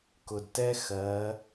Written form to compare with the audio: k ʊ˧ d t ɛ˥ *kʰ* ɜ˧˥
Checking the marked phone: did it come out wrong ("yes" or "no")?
yes